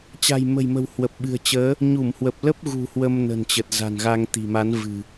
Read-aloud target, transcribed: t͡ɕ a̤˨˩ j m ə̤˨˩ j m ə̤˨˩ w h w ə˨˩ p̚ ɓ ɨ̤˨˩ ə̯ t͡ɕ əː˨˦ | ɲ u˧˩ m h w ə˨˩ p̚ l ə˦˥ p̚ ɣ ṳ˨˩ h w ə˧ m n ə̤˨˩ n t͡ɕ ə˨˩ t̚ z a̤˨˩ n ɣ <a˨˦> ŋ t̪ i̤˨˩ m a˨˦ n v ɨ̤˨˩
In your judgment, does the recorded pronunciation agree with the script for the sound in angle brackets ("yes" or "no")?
no